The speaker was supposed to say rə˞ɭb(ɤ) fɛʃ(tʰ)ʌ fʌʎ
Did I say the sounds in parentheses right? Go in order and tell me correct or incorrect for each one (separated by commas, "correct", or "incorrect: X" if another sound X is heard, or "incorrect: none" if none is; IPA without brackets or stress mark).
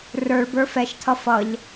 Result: incorrect: ə˞, correct